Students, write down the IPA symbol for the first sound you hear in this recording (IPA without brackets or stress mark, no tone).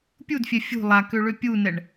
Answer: pʲ